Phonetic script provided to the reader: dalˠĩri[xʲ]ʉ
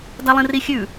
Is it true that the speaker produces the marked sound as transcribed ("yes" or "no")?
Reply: yes